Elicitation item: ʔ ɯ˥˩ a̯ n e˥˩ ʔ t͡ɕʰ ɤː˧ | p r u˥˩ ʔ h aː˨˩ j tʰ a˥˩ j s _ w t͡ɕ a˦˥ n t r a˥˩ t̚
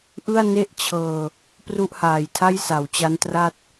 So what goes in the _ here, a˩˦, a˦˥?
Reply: a˩˦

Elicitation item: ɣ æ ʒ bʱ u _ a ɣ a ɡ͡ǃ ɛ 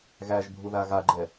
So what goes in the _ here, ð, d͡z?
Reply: ð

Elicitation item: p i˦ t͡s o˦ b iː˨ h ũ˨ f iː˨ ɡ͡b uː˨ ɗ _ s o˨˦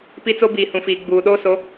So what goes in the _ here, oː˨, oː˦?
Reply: oː˦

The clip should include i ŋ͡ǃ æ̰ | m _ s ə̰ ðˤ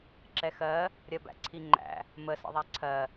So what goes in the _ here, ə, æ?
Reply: ə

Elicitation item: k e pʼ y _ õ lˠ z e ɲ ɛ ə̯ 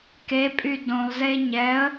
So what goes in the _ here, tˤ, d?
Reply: d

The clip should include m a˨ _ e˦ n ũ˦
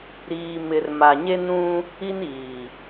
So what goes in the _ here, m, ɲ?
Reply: ɲ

